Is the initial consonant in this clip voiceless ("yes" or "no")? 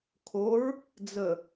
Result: yes